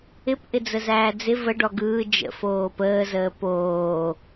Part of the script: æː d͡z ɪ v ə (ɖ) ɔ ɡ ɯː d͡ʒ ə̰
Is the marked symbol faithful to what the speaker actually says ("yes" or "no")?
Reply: yes